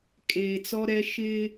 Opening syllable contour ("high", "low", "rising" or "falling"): low